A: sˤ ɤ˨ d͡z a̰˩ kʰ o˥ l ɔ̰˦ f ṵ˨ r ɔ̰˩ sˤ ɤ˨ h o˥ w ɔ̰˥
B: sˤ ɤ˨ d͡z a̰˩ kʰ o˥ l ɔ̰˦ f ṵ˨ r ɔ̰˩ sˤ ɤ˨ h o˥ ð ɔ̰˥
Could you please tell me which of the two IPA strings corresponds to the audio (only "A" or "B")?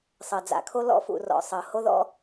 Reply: B